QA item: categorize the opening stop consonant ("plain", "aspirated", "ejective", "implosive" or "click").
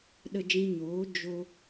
implosive